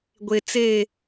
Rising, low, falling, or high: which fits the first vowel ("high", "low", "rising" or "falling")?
low